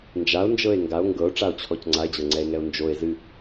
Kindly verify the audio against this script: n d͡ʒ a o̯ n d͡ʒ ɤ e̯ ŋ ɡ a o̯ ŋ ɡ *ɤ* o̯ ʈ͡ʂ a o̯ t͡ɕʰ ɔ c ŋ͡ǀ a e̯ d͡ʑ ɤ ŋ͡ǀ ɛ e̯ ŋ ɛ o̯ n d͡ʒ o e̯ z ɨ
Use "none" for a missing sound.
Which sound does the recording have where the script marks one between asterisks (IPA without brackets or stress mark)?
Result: ɤ